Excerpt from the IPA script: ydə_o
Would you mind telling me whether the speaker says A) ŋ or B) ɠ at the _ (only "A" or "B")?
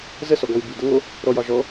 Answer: A